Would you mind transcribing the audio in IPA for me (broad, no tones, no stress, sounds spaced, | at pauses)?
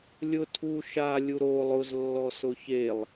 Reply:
lʲ ʊ tʰ u ʃ a lʲ u ɾ o lˠ ʊ z lː ɔ s ʊ ç e lˠ